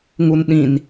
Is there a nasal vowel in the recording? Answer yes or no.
yes